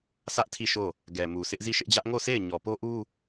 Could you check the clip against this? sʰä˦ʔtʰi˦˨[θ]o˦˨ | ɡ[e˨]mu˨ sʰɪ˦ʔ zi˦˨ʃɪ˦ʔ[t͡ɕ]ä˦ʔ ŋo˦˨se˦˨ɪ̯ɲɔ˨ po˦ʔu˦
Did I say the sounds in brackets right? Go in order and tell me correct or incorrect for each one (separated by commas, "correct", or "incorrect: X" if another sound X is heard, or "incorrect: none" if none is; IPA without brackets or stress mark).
incorrect: ʃ, incorrect: ɛ˨, incorrect: d͡ʑ